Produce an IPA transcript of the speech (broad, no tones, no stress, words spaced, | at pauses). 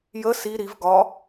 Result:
jə si ɾiv ɡɒ